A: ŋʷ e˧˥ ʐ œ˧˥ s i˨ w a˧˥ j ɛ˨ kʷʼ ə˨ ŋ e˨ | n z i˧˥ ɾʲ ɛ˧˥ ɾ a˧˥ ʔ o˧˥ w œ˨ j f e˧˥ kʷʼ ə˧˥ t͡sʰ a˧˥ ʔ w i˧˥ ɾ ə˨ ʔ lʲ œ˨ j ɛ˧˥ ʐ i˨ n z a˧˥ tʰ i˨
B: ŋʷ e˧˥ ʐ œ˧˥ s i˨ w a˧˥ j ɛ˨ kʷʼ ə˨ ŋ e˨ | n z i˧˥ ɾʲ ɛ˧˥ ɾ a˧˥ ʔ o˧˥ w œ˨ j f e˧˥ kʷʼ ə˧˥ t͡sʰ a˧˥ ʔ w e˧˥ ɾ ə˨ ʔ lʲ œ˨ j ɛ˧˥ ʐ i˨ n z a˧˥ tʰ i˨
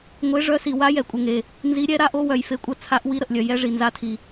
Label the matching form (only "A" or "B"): A